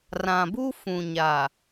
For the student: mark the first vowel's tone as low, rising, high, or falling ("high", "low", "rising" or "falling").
low